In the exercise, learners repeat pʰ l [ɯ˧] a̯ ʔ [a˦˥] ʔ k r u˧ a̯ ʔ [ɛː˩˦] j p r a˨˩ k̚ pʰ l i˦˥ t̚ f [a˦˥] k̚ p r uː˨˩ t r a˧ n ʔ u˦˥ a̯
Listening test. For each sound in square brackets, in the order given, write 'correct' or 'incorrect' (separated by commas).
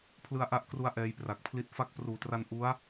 correct, correct, incorrect, correct